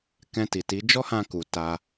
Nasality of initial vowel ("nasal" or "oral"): nasal